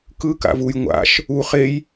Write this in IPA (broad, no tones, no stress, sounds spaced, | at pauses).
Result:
k ɯ k a̰ v u j ŋʷ a̰ ʃ | u χ e j